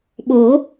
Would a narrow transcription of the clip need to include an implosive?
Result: yes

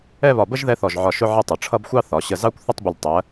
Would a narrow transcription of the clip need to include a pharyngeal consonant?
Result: yes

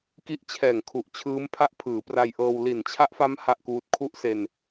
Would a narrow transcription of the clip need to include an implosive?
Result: no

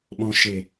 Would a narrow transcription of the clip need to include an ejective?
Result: no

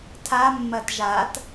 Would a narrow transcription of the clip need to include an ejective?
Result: no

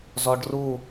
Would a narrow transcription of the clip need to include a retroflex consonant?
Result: yes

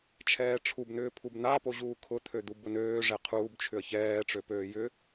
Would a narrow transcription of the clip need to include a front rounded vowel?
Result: yes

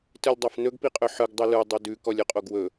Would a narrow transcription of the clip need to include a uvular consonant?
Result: yes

